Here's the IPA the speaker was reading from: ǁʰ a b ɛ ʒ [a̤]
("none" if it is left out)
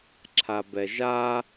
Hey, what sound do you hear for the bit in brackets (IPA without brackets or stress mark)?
a